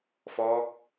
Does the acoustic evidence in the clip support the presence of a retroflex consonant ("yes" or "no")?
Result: no